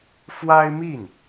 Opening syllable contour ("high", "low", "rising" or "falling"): high